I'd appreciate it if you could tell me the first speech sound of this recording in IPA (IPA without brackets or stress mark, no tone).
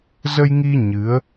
z